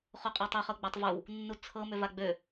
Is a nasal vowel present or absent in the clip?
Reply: absent